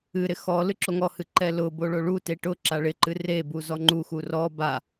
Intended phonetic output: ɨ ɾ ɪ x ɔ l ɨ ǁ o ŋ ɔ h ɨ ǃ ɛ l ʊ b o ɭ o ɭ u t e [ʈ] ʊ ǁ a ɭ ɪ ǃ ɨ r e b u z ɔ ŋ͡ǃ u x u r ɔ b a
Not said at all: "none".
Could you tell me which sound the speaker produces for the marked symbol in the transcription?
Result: ʈ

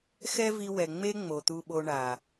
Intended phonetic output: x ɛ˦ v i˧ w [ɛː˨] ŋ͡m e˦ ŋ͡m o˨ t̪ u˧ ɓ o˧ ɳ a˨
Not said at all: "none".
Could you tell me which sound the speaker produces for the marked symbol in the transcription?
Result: ɛ˨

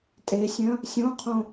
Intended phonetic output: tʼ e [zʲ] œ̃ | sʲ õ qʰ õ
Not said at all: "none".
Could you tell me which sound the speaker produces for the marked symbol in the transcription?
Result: sʲ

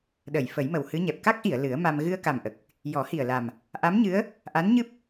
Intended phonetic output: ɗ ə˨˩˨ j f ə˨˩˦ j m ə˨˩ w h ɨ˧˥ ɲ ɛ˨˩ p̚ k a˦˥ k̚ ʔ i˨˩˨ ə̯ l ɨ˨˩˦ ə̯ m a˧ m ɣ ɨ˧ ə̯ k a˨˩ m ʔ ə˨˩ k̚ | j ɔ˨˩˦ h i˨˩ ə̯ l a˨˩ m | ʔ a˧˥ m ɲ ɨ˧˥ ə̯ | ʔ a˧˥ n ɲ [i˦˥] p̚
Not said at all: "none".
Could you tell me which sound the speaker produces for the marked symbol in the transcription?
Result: ɨ˦˥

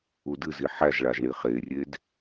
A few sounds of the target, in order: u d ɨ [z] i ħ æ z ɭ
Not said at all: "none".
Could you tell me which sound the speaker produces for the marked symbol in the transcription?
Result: z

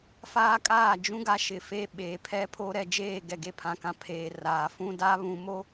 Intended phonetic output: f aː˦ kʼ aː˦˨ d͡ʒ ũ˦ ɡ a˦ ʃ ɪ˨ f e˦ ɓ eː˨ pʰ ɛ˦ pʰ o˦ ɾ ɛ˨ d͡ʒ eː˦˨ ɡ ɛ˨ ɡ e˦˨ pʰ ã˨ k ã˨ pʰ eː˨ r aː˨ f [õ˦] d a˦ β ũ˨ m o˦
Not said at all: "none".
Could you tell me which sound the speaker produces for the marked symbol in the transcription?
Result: ũ˦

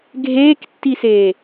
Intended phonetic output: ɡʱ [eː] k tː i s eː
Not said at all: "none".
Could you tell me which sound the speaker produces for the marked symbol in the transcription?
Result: eː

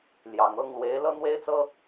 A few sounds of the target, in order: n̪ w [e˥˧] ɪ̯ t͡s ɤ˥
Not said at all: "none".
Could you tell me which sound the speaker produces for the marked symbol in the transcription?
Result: e˥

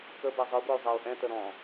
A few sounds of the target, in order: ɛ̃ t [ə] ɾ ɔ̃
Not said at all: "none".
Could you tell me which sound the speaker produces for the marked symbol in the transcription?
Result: ə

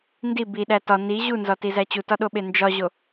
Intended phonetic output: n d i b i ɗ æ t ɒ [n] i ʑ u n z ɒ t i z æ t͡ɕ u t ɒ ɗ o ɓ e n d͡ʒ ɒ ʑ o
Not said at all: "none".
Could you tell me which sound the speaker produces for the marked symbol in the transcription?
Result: n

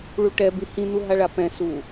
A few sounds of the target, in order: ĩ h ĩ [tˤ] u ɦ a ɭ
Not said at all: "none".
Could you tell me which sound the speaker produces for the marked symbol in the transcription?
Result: n̪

